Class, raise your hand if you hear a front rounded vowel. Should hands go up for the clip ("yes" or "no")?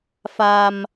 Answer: no